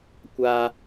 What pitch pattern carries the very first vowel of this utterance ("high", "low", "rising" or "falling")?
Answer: high